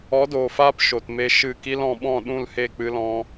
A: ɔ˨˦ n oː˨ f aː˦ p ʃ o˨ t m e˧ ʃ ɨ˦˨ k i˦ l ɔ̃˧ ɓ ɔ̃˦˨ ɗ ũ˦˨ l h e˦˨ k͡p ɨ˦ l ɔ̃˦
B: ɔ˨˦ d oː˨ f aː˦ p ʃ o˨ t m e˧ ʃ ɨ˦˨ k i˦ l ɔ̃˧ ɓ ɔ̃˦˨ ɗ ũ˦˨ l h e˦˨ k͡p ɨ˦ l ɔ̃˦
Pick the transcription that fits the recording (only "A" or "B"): B